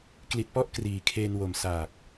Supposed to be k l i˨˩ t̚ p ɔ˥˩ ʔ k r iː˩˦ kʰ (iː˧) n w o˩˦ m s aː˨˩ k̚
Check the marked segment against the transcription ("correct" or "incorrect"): incorrect